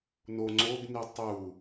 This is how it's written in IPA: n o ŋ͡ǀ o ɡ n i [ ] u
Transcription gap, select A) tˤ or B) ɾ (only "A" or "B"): A